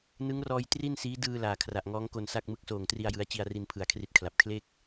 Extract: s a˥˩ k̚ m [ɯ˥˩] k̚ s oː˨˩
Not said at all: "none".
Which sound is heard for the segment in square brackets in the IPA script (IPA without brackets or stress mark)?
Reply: ɯ˦˥